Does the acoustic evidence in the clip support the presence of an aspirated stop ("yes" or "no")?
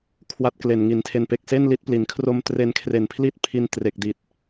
yes